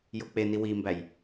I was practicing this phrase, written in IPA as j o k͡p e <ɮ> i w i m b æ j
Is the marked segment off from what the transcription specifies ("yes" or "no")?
yes